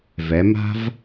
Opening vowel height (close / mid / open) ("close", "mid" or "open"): mid